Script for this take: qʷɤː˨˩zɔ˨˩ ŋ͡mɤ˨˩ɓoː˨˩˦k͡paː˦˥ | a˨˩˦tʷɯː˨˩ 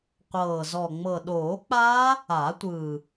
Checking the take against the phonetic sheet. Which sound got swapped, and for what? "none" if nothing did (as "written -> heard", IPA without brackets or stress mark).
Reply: ɓ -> ɗ